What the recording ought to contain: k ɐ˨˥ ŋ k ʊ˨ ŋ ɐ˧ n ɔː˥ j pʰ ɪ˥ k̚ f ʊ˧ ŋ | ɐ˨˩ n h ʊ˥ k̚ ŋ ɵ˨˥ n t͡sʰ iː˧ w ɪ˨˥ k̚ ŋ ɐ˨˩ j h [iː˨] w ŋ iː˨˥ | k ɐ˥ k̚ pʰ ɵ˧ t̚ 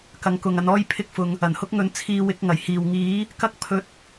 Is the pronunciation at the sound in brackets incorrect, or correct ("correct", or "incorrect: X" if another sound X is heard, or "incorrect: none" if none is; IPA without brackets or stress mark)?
correct